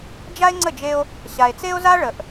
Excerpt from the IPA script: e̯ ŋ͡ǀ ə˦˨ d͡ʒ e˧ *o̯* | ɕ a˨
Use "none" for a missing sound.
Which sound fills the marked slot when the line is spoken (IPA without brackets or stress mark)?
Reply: o̯